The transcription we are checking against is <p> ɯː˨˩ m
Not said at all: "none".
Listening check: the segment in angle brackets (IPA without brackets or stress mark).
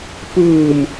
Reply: p